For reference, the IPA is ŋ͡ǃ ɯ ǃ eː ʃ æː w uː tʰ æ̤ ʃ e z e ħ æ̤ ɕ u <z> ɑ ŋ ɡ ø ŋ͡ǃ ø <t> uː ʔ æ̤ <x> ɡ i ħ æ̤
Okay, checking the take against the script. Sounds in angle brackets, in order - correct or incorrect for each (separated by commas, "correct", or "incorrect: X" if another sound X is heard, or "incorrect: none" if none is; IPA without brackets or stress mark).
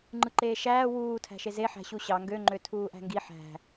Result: incorrect: ɕ, incorrect: tʰ, incorrect: ŋ